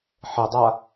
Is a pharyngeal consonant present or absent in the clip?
present